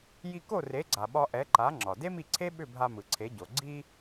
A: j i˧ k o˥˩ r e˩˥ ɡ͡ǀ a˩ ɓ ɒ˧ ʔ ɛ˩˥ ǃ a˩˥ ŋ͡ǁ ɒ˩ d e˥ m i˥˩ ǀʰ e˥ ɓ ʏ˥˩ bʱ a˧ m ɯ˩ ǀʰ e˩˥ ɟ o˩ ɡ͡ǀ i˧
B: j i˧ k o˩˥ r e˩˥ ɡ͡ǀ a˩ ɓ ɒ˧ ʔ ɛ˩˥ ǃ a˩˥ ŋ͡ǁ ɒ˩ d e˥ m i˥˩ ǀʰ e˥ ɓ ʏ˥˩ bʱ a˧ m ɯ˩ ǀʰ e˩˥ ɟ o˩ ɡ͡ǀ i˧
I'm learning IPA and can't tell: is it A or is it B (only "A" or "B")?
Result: A